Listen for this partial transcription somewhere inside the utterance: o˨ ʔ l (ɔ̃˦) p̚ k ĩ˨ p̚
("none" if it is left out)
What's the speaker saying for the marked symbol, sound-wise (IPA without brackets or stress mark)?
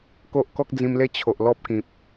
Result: ɔ˦